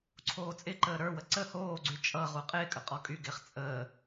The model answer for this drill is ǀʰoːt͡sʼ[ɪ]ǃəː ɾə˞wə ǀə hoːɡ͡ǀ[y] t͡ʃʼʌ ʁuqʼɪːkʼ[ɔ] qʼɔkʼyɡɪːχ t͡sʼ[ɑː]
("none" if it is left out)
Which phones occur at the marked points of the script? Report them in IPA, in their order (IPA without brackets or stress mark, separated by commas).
ɪ, y, ə, əː